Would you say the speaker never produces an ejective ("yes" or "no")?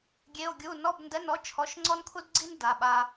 yes